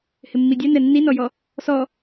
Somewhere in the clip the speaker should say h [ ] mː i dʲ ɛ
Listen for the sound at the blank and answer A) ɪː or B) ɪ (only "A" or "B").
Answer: B